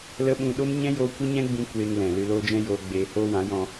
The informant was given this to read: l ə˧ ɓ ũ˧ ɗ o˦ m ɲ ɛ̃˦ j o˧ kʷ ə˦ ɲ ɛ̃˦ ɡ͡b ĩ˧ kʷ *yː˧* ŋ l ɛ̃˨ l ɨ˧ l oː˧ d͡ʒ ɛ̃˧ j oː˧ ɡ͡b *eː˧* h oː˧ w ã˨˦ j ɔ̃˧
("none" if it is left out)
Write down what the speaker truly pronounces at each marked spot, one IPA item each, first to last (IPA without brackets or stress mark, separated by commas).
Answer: eː˧, eː˧